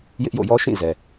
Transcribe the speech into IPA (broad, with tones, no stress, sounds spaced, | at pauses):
j ɪ˦ ʔ j o̰˦˨ j ɔ˦ ʃ ĩ˦˨ z ɛ˨